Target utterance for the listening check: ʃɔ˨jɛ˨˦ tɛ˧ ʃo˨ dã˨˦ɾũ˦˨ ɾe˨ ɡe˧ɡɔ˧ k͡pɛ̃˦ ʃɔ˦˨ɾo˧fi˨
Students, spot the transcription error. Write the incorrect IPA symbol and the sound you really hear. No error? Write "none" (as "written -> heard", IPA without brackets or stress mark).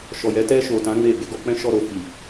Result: d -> t